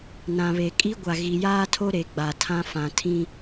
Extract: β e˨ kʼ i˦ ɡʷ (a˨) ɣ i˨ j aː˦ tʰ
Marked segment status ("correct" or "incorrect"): correct